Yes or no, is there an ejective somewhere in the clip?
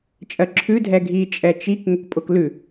yes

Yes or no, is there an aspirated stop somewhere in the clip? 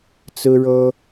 no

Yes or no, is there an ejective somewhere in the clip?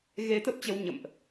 no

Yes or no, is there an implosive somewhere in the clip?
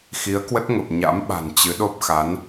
yes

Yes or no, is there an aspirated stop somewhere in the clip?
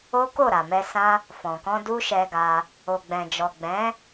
no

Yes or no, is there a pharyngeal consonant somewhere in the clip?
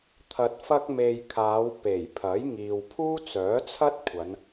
no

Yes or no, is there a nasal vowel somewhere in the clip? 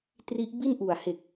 no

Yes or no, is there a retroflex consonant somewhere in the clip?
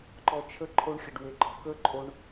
yes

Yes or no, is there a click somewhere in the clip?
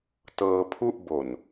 no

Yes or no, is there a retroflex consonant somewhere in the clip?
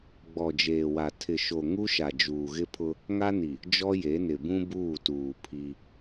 no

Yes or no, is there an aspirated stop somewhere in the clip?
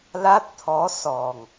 yes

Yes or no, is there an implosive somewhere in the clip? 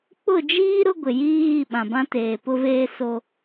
yes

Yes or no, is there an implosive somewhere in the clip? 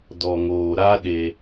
yes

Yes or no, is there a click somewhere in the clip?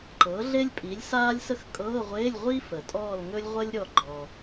yes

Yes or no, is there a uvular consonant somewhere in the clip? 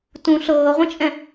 yes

